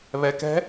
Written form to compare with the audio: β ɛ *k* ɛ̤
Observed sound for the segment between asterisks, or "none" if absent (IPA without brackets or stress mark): k